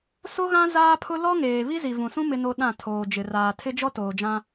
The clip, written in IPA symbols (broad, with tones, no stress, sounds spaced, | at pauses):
s o˦ ɣ ã˦ z aː˦ pʰ ʊ˦ l ɔ˦ ŋ eː˨ β i˦ z i˨ v ũ˨ s ũ˦ m ɪ˦ n o˦ ɗ ã˦˨ tʰ oː˨ d͡ʒ ɪ˨ r aː˨ tʰ ɪ˦ d͡ʒ ɔ˦ t oː˨ d͡ʒ ã˦